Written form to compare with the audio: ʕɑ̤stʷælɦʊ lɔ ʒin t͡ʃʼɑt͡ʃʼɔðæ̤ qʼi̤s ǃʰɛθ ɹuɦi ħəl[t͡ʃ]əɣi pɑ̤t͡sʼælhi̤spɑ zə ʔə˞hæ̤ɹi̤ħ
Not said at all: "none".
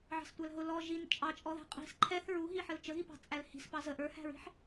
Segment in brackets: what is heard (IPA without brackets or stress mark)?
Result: t͡ʃ